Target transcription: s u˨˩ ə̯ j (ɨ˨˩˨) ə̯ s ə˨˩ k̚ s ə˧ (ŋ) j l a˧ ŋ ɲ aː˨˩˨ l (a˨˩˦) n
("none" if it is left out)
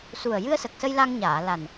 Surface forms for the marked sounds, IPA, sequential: ɨ˧, none, a˨˩

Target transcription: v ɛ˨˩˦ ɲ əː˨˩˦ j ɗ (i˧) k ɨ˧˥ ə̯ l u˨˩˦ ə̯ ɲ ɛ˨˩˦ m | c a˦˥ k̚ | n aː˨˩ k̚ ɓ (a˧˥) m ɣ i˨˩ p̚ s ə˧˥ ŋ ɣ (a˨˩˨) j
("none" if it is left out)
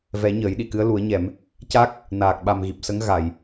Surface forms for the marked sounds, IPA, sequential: i˨˩˨, a˨˩, a˨˩˨

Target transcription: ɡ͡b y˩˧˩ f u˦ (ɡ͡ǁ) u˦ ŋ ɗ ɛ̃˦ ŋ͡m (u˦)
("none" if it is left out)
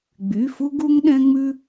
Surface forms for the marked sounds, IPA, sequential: ɡ, ʉ˦

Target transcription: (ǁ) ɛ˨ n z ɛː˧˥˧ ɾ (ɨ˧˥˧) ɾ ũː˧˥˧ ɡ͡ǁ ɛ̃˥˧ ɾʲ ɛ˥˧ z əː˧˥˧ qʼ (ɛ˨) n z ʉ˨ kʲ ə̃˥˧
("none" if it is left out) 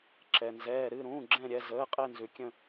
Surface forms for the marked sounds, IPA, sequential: ǁ, ɨ˧˥˧, ɛ˥˧

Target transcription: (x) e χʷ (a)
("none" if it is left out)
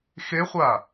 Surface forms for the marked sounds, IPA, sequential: x, a

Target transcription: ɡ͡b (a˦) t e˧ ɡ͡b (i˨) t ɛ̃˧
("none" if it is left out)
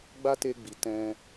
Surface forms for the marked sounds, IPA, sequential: a˦, i˨

